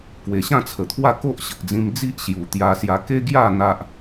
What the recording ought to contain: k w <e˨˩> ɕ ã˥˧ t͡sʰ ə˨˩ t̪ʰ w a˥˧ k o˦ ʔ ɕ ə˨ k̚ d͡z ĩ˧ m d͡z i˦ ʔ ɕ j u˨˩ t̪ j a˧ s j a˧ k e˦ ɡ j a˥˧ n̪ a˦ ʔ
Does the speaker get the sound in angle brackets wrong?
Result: no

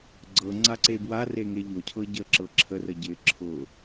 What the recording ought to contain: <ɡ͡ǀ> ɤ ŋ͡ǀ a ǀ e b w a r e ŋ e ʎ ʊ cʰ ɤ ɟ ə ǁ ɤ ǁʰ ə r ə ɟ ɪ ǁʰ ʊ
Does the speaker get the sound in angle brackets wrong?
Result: no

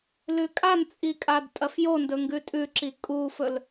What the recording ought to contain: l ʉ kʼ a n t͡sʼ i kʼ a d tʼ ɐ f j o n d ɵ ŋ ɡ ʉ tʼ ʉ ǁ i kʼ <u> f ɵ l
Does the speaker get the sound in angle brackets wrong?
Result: no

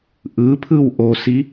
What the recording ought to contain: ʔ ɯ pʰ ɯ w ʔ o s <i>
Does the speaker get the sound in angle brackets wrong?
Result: no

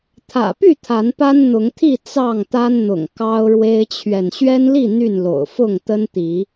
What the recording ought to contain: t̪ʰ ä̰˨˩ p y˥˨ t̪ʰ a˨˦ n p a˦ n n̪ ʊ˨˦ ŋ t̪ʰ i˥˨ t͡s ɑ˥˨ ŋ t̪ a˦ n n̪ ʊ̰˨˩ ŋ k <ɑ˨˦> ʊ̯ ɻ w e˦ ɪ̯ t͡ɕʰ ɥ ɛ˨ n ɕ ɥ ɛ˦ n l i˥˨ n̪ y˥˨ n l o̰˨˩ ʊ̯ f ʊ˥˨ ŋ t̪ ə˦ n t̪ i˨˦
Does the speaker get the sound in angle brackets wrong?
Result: yes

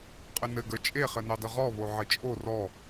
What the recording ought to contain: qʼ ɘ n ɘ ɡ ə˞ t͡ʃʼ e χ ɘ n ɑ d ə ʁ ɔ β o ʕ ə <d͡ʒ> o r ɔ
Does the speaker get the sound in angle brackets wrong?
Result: yes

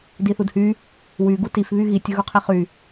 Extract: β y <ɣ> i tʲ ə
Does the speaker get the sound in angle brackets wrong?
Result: no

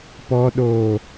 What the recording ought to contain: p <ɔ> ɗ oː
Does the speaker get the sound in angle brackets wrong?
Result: no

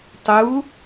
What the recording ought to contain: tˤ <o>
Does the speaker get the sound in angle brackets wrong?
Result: yes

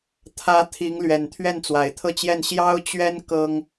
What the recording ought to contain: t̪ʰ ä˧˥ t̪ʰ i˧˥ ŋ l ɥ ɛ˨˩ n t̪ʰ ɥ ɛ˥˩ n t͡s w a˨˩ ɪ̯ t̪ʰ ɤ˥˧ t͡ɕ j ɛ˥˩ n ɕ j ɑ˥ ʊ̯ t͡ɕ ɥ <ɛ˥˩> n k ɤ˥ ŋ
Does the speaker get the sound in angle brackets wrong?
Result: yes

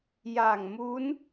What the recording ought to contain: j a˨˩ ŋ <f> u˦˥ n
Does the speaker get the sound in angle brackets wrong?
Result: yes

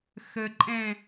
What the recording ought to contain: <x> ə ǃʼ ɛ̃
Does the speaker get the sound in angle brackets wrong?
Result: no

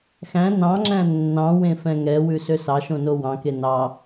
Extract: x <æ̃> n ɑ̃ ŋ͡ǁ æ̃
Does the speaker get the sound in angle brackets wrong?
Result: no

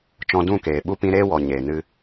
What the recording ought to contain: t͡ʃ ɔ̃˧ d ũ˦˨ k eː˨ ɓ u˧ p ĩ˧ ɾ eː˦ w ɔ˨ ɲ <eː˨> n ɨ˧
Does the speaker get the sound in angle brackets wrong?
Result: no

